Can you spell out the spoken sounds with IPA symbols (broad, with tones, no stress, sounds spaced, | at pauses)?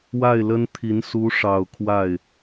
w a˥˩ ɪ̯ l ə˥ n t̪ʰ i˧˥ n s u˧˥ ʂ ɑ˨˩ ʊ̯ kʰ w a˥˩ ɪ̯